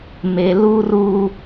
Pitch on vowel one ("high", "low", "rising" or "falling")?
low